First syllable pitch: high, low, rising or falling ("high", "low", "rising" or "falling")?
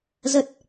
low